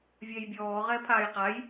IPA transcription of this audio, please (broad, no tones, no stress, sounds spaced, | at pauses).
vʲ ɛ j bʲ ɔː ʁ ɛː pʰ aː j q a j